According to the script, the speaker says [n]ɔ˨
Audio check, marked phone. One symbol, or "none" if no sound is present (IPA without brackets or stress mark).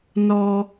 n